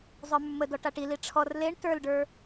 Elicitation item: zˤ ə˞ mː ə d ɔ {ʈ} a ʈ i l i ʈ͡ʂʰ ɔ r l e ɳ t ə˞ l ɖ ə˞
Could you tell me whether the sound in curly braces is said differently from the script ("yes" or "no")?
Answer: no